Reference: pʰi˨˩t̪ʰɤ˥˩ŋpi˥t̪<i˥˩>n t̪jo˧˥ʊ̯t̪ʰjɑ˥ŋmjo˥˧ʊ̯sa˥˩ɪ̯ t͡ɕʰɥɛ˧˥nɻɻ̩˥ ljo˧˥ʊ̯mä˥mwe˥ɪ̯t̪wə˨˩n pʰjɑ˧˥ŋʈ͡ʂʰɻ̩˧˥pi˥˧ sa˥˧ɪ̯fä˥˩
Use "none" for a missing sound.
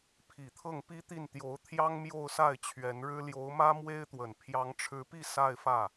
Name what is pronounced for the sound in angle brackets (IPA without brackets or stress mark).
i˥˩